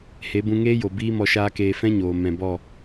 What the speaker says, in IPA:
h e˨˦ b ũ˧ ŋ eː˦ j o˨ b iː˦ m ɔ˧ ʃ aː˦ k eː˧ f ɛ̃˦ ɲ oː˨ m ɛ̃˨ b ɔ˦˨

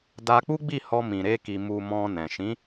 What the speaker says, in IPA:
d a˧ k͡p u˦ ɡ͡b i˦˨ h ɔ˧ m ĩ˨ ɾ e˧ k i˨ m u˨ m ɔ̃˧ n ɛ̃˨ ʃ ĩ˨˦

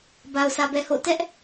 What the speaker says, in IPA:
b a˨ ʊ̯ s ä˨ b ɛ˨ h o̰˦˨ t ɛ˦ ʔ

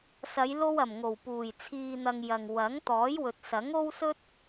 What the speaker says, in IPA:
s ɐ˨˧ j l o˧ w ɐ˨˩ m ŋ o˨˩ w p uː˨˩ j t͡sʰ iː˨ n̪ ɐ˨ ŋ j ɐ˨ ŋ w ɐ˨˥ ŋ t̪ ɔː˨˥ j w ɵ˨ t̚ s ɐ˨˥ ŋ o˥ w s ɵ˥ t̚

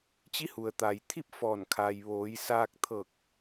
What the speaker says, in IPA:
t͡ɕ i˧˥ h u˩ ə̯ t̪ a˩ j t̪ʰ i˥˨ p̚ f ɔː˧˩ n kʰ a˩ j ʋ oː˩˧ j s aː˧ k̚ t̪ʰ ɤː˧˩ k̚

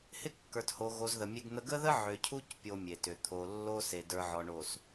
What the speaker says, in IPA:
h ɪ˦ kː ə˞˨ t h o˨ ɣ o˨ z ð ə˨ mʲ e˦ ɡ n̪ ə˦ ɡ ə˦ ð ə˦ ʕ ʏ˨ cʰ u˦ c pʲ o˦ mʲ e˨ t ʏ˨ t̪ʰ o˨ lː o˦ s e˨ d ə˞˨ ʕ ɔ˨ ɳ o˨ s

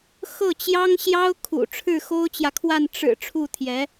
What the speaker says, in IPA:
x ɤ˥˩ t͡ɕ j ɑ˥ ŋ ɕ j ɑ˥ ʊ̯ kʰ ṵ˨˩ ʈ͡ʂʰ ɻ̩˥˩ x o˥ ʊ̯ t͡ɕ j ä˨ kʰ w a˥˩ n ʈ͡ʂ ɻ̩˨˩ ʈ͡ʂʰ u˥˩ t̪ʰ j ɛ˧˥

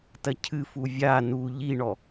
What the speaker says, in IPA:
t ɐ cʰ ɨ f u vʲ a n u ʎ i ɳ ɔ

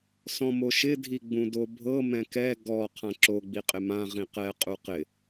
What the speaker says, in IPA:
s ɔ̃ m o ʃ ɪ dʱ i ɡ͡b ũ d o bʱ ɤ m ɛ̃ k ɛ ɡ ɔ qʰ ã ǁ o ɡ͡b i qʼ ɪ m ã ʁ ĩ q ɛ qʼ u q ɪ

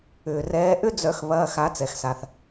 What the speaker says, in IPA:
ʏː˩ r ɛː˨˦ ʔ ʏ˦ d͡z œ˨˩˦ x β ɐː˩˧˩ x a˨˩˦ t͡s ɛ˩ x s a˩ θ

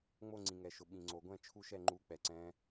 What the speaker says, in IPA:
ŋ͡m o˦˨ ŋ͡ǀ ĩ˩ ŋ ɛ˩ ʃ ʊ˩ ɓ ĩ˩ ŋ͡ǀ o˩ ɡʷ ɛ̃˦˨ t͡ʃʰ u˦˨ ʃ ɛ˦˨ ŋ͡ǃ u˨˦ k͡p ɛ˩ ǀ ɛ̃˨˦

